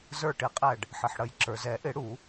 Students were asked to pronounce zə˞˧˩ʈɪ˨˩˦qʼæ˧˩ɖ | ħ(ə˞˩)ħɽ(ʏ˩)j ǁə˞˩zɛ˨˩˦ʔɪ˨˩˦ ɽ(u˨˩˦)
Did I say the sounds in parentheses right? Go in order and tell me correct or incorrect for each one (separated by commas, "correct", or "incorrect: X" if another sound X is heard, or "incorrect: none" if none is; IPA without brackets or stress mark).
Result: incorrect: ə˩, incorrect: ə˩, correct